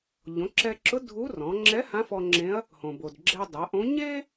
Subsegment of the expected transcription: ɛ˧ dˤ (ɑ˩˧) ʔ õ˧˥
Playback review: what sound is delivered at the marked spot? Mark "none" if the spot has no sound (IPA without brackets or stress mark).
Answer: a˩˧